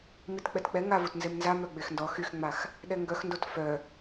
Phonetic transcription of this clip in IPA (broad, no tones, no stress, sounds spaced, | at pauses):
m i t k͡p ɛ t k͡p ɛ ŋ a v u t n z e m n z a m œ ɡ͡b e x n d ɔ x y x ŋ͡m a x | ɗ ɛ ŋ ɡ œ x n d o t f œ